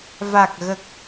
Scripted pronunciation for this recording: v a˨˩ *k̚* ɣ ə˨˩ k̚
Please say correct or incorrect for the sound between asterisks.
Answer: correct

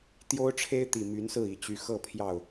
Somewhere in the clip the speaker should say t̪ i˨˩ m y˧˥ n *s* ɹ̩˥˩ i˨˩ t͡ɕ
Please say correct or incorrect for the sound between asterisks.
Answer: correct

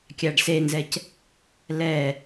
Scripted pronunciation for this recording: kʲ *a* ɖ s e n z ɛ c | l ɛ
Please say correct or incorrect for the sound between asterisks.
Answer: correct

